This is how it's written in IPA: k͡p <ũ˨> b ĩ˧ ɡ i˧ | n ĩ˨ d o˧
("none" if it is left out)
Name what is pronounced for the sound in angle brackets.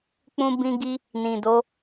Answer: ũ˧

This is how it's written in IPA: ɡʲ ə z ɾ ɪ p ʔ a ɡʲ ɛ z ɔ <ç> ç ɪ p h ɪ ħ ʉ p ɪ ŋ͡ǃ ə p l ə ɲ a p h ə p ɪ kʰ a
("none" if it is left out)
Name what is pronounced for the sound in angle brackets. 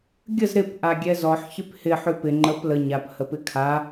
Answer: ħ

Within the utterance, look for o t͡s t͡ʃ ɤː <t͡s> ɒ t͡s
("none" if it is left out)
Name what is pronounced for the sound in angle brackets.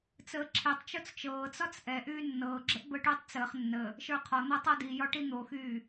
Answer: t͡s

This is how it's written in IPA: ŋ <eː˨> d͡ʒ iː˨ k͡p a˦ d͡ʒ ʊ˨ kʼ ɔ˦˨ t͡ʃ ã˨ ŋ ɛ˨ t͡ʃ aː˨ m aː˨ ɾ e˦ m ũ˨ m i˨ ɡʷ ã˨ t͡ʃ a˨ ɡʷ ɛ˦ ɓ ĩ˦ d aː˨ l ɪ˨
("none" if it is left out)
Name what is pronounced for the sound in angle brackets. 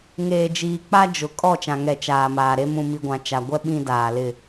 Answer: eː˨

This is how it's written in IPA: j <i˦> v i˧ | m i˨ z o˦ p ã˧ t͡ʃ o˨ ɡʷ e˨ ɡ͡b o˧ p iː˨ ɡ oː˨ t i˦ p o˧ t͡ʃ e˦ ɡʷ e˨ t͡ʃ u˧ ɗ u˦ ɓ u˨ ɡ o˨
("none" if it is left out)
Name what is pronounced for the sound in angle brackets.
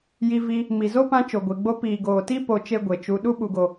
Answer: i˧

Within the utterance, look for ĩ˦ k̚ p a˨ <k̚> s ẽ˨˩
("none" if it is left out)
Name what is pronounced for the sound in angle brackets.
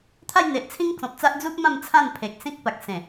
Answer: k̚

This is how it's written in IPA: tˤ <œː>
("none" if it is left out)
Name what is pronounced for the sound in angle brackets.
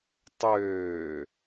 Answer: øː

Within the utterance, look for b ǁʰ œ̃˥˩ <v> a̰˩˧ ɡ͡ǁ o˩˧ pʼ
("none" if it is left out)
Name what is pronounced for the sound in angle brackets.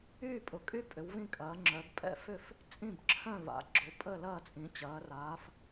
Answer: v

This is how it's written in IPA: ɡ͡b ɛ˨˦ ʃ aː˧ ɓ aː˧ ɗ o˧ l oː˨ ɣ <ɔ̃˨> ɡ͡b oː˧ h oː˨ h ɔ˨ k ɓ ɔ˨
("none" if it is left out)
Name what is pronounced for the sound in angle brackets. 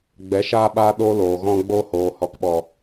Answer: ɔ̃˧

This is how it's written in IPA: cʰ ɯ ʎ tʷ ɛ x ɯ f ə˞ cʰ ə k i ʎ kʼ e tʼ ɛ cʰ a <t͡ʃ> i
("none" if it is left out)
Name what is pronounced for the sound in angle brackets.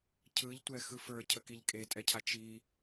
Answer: t͡ʃ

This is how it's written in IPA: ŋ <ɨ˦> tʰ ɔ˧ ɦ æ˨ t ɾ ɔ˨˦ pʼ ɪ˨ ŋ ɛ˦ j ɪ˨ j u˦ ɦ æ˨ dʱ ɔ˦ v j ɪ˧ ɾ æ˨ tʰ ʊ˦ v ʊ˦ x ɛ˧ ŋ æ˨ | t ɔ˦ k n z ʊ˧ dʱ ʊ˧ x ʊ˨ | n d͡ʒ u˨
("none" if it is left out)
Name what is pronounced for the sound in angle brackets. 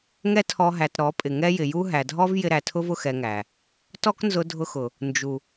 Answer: ɛ˦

